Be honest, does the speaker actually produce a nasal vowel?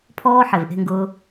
no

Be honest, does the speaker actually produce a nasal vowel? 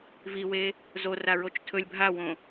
yes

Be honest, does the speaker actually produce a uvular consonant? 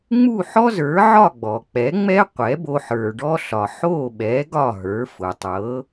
yes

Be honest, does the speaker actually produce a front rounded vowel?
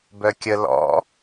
yes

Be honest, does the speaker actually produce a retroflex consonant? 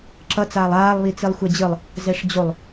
yes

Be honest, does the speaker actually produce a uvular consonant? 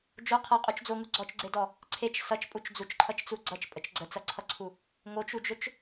yes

